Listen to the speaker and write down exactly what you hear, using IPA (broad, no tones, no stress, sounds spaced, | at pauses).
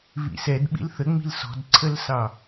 β ḭ s ɛ d ɓ ḭ l θ ə ŋ͡m i̤ l s ɔ̤ d ǀʰ ə l s ɑ